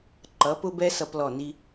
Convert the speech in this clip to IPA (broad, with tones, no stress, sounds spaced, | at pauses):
ǃ ʌ˨˦ p ʊ˦ b ɛ˦ s ʌ˦ p l ɔ˦˨ n i˦